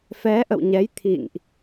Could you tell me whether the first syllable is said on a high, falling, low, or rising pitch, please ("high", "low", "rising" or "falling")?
rising